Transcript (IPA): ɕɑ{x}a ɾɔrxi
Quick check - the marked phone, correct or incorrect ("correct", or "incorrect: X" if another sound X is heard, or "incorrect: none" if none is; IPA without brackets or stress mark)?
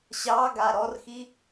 incorrect: ɡ